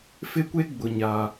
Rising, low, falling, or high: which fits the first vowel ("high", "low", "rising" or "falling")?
high